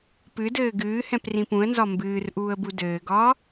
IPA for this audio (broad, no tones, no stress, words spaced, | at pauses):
pɨdɘː ɡɨː hɛ̃prĩpũə̯nzɒ mbɨːr ʔuːə̯budɘːɡɒː